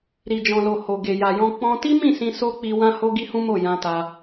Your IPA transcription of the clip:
ɾ i˨ d͡ʒ ɔ̃˨ l o˨ h o˨ ɡ e˨ j a˨ j ɔ̃˧ k͡p ɔ̃˧ t i˦ m ĩ˦˨ s ĩ˧ s o˦ k͡p i˧ w ã˦ h o˦ ɡ i˦ h ũ˦ m o˦˨ j ã˧ t a˧

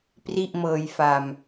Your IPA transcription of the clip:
p r i˥˩ ʔ m ɤː˧ j f a˧ m

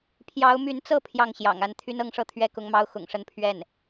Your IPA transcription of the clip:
pʰ j ɑ˧˥ ʊ̯ m y˧˥ n t͡s ɤ˥˧ pʰ j ɑ˥˩ ŋ ɕ j ɑ̰˨˩ ŋ a˥˩ n t̪ʰ y˥ n ɤ˥ ŋ ʂ ɤ˥˩ t̪ʰ ɥ ɛ˥ k ʊ˧˥ ŋ m ɑ˥ ʊ̯ x ʊ̰˨˩ ŋ ʂ ə˥˧ n pʰ ɥ ɛ˥˩ n

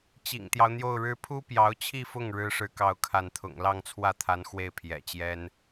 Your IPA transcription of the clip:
t͡ɕ ḭ˨˩ ŋ t̪ j ɑ˦ ʊ̯ n̪ j o˥˩ ʊ̯ ɻ ɻ̩˥ pʰ u˥ p j ɑ˧˥ ʊ̯ t͡ɕʰ i˥˧ f ʊ˥˩ ŋ ɻ ɻ̩˥ ʂ ɻ̩˥ k ɑ˥˧ ʊ̯ kʰ a˥˩ n t̪ʰ ʊ̰˨˩ ŋ l ɑ˥˧ ŋ t͡sʰ w ä˥˩ t̪ʰ a˧˥ n x w e˥˩ ɪ̯ pʰ j ɛ̰˨˩ t͡ɕ j ɛ˥ n

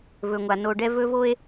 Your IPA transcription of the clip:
v ɵ˧ ŋʷ a˧ n o˧ ɖ ɛ˦ v ɵ˦ v o˦ e̯

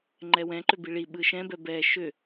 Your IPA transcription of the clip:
ŋ͡ǃ ɛ w ɛ̃ ǃ ʏ b i ɭ i ɓ ɯ ʃ ɛ̃ b ɛ b ɛ ʃ ʏ

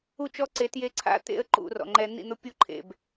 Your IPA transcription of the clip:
u˦˨ t͡ʃ ɔ˦ ǀ e˨˦ t j e˦ ǀʰ a̰˦ t̪ ḛ˦ ə̯ ǃ ṵ˨ r ɔ̰˨ ŋ͡ǃ ɛ˦ n̪ ḭ˦˨ n̪ ʊ˦ pʲ u˦ ǃʰ ḛ˨ b

